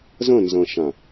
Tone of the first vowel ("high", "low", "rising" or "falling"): falling